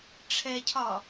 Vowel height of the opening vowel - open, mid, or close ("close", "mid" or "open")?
mid